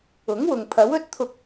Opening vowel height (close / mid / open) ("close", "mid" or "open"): close